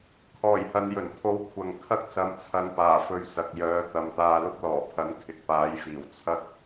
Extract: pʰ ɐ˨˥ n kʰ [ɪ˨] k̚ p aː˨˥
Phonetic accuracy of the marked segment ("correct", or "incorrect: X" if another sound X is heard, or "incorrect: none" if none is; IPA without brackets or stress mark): correct